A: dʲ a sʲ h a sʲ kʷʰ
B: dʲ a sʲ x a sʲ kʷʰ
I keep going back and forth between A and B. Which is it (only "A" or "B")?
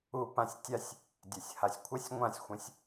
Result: A